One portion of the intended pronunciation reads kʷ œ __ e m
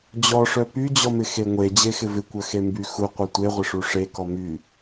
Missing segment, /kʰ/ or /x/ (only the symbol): x